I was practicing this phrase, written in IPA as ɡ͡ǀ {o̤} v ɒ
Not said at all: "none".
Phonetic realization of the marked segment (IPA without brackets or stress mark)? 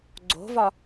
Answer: o̤